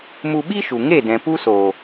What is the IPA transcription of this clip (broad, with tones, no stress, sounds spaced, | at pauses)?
m u˧ ɓ i˦ ʃ u˨ ŋ e˦˨ d ɛ̃˨ p u˦ s oː˨